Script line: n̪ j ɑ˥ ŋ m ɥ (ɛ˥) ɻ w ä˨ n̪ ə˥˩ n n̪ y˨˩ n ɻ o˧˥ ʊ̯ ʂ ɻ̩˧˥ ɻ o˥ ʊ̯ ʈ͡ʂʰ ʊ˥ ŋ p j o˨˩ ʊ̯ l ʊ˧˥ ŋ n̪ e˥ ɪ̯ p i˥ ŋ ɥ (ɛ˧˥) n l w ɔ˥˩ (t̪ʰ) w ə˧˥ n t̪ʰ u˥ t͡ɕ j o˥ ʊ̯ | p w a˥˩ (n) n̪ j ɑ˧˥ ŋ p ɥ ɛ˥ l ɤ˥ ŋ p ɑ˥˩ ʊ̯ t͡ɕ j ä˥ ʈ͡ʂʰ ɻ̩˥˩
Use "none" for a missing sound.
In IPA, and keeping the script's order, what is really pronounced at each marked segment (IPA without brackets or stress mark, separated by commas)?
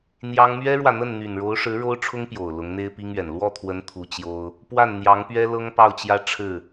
ɛ˥, ɛ˨˩, t̪ʰ, n